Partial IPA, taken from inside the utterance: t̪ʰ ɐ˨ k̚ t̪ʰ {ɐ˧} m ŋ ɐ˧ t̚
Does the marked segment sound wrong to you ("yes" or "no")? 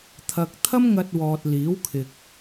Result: yes